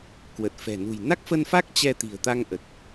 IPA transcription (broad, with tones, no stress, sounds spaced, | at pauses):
k w ə˨˩ t̚ f ɛ̤˨˩ n ṳ˨˩ j n a˦˥ k̚ f ə˧ n f a˦˥ k̚ t͡ɕ ɛ˧ t̪ i̤˨˩ ə̯ t̪ a˧ ŋ ʔ ə˨˩ t̚